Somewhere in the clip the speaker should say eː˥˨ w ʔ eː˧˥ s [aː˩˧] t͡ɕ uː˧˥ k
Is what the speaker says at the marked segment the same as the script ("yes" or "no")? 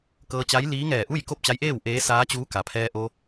no